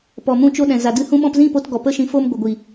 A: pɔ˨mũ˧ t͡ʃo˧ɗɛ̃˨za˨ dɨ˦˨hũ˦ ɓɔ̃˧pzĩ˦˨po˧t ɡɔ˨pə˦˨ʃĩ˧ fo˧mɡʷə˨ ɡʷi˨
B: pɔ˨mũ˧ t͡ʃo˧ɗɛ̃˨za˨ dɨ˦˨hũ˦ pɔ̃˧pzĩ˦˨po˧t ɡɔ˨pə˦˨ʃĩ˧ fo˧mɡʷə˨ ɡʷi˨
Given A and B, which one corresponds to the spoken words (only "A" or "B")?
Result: A